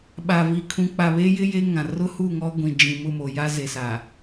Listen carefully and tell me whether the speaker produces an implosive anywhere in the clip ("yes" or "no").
yes